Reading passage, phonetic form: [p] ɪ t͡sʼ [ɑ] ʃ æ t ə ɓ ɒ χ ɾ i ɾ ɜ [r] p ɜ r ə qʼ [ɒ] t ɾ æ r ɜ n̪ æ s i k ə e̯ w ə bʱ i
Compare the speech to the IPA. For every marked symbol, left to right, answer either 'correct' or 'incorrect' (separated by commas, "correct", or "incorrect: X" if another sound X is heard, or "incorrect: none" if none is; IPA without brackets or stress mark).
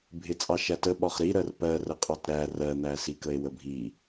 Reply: incorrect: bʱ, correct, correct, incorrect: ɑ